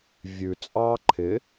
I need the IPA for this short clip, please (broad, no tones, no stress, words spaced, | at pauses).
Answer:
vʲʉ t͡sʼɑ ǃʰɪ